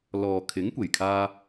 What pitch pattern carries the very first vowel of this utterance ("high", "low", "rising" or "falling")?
low